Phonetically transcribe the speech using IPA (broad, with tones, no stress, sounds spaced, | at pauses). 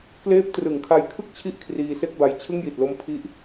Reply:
k l eː˦˥ p̚ t r ɯ˩˦ ŋ kʰ a˧ j kʰ ɯ˥˩ k̚ t͡ɕʰ i˥˩ ʔ kʰ r iː˧ s e˥˩ k̚ b a˧ j t͡ɕʰ ɯ˥˩ ŋ j i˨˩ t̚ l o˦˥ m pʰ i˦˥ ʔ